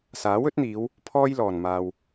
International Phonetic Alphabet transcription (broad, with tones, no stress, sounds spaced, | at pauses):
s aː˨˥ w ɵ˨˥ t̚ n̪ iː˨˧ w | pʰ ɔː˥ j l ɔː˨˩ n m aː˨ w